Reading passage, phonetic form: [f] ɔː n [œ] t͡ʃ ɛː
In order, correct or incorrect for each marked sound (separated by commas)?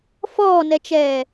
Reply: correct, incorrect